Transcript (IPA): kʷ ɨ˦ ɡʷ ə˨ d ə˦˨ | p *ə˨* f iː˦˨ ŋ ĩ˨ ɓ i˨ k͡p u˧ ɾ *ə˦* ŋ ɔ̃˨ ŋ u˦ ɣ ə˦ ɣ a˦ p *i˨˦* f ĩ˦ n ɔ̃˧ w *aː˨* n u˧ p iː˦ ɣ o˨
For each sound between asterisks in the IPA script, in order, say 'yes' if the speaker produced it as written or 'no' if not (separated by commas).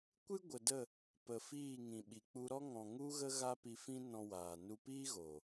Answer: yes, no, no, yes